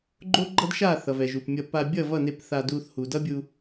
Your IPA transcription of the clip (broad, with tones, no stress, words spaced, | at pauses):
ɡ͡ǃo˦ɡ͡ǃʌ˦dʃa˦˨ θʌ˨vɛ˨ʒu˨pmʲʌ˧ pa˧ bʲʌ˦˨vʌ˦˨ne˧p θa˧du˧θhu˨ dʌ˦bʲu˧